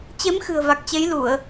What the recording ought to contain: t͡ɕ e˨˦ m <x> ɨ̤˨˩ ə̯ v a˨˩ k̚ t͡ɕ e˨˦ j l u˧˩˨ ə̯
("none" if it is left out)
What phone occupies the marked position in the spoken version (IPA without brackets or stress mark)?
x